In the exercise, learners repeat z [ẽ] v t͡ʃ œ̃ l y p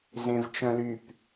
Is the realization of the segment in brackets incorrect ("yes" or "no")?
no